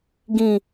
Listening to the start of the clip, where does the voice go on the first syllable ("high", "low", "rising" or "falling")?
low